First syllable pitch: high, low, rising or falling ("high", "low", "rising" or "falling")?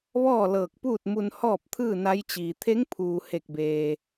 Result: falling